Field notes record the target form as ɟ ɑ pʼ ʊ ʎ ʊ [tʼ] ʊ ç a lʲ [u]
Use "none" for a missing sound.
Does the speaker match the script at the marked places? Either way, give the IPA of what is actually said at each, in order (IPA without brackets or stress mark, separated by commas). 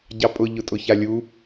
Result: tʼ, u